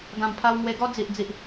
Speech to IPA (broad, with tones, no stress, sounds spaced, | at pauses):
ɡ ã˨˩ m pʰ a˧ w ŋ w e˧ ɡ ɔ˦ d͡z i˨ ʔ d͡z i˨ ʔ